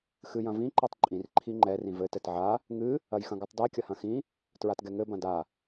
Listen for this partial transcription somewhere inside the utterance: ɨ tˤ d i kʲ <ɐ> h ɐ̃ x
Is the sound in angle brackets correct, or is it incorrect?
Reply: correct